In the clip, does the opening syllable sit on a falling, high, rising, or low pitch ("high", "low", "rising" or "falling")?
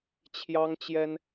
high